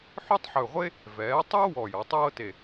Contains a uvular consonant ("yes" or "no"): yes